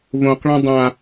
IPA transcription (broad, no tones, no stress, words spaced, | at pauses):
võqɭã dˤã